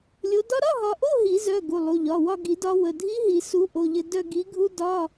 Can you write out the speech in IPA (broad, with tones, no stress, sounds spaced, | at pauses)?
lʲ o˨˦ d ɒ˦˥ ɾ ɒ˧˥˧ ɦ ɒ˨˦ ʔ o˧˥˧ ɦ i˨˩˦ z œ˩˧˩ ɡ u˩˧˩ lˠ u˩˧˩ ʎ ɒ˩˧˩ w ɒ˦˨ ɡ i˨˩˦ d ɒ˨˦ w ə˩˧˩ dʱ i˦˥ ɦ i˨˩˦ s u˨˦ ʔ o˩˧˩ ʎ ɘ˦˨ d œ˦˨ ɡ i˨˦ ɡʱ u˦˥ d ɒ˧˥˧